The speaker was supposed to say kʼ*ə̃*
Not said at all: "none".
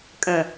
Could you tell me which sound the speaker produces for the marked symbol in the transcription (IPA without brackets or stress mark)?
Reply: ə̃